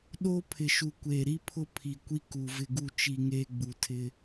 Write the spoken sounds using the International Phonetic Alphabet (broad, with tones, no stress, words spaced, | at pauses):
ɗoː˦pʰɪ˨ʃu˨ kʷeː˨ɾi˦pʰʊ˦ pʰi˨kʷi˦ ku˨ vɪ˨ɡu˨t͡ʃi˨ ŋeː˦ɡ͡bu˨tʰɪ˦